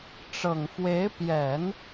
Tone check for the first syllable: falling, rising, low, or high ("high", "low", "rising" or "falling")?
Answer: low